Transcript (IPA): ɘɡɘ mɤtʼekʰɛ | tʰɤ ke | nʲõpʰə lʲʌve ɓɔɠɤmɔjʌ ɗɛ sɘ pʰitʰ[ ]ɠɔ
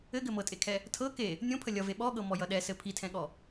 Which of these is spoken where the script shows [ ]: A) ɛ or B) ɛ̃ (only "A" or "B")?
B